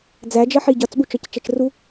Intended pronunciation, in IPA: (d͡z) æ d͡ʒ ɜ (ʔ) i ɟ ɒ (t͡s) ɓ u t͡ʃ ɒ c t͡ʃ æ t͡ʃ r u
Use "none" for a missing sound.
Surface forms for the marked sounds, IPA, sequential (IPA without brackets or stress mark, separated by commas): d͡z, ħ, t͡s